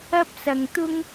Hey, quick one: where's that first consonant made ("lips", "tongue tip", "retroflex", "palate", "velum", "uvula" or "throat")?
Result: lips